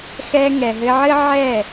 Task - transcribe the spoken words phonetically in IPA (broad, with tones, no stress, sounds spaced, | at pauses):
x ɛ˧ ŋ ɛ˨ ɦ ɘ˧ ʕ ɘ˦ ʕ ɛ˦˨